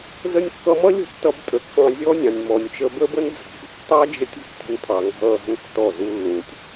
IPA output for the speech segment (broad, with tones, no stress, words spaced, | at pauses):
zə˧nʲkːʌ˧mʌ˦ lʲə̤˦tːʌ˧b tʼə˨kːɑ̃˧ zʲɔ˦nʲɑ̃˨nʲ mɔ˨nʲt͡ʃə˧ bə˦bə˦n d͡zɑ̤˨b tːɑ˦d͡ʒə˧tʲə̤˦k tʲə̤˧npʰɑ˨ ŋɑ̤˦lːɑ̤˦ntːɔ˦˨zu˦ lːũ˨tʲ